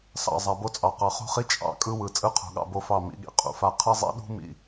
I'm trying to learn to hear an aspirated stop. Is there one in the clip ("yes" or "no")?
yes